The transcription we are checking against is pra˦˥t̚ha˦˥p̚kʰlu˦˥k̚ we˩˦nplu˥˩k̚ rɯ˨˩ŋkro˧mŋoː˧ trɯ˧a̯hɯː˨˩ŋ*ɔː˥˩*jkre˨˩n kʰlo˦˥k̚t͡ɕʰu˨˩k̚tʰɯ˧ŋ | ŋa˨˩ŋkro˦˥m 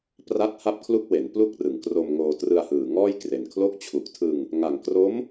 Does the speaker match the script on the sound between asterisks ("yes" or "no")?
yes